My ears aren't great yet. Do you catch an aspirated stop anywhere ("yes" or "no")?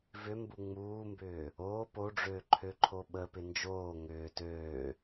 yes